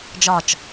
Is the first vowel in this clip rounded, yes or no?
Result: yes